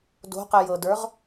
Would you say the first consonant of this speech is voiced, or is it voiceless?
voiced